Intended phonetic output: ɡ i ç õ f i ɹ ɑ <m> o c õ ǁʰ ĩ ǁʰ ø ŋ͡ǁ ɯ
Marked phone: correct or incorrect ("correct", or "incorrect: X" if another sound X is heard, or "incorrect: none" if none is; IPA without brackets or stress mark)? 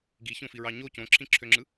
incorrect: ɲ